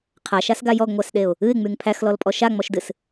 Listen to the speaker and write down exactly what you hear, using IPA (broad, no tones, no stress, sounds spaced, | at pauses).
qʰ a ʃ a s ɡ a j ɔ ɡ ŋʷ æ s ɗ e ʊ̯ | ɨ ɪ̯ ŋ͡m y ŋ pʰ æ x l ɔ l pʼ ɔ ʃ a ŋ͡m ɔ ʃ d ɨ s